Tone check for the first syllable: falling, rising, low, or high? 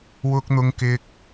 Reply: high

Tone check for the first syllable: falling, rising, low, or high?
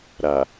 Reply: low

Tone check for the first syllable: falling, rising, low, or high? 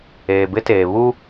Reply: low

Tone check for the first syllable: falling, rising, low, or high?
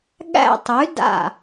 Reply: falling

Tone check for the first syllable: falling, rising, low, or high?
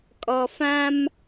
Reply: low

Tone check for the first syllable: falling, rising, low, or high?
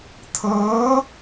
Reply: rising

